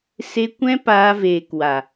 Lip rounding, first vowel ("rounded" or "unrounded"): unrounded